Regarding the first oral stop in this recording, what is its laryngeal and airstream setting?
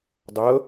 plain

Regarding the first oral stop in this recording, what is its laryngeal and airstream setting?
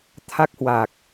aspirated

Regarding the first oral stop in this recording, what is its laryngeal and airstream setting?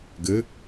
plain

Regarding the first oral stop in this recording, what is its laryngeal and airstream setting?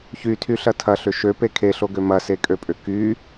aspirated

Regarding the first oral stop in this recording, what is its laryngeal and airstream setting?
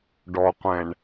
plain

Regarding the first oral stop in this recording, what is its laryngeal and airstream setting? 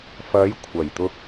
aspirated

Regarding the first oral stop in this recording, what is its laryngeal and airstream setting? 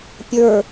plain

